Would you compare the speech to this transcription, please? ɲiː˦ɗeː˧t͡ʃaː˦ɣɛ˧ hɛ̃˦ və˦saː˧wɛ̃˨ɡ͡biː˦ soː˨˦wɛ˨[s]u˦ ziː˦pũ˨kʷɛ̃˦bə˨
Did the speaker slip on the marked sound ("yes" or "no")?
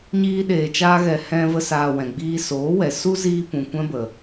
no